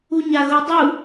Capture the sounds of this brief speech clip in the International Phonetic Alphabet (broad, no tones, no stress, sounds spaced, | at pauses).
u ɲ a ɣ o dˤ u